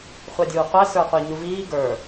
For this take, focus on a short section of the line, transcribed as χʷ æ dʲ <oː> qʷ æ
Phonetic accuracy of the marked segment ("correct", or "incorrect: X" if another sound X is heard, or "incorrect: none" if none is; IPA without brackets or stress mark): incorrect: uː